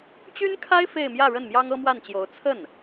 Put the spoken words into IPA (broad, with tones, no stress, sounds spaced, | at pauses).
t͡ɕ y˥ n kʰ a˥ ɪ̯ f e˥˧ ɪ̯ m j ä˥˧ ɻ ə˥˩ n m j ɑ˥ ŋ ɤ˥ m w a˥˩ n t͡ɕ j o˧˥ ʊ̯ t͡sʰ ə˥˩ n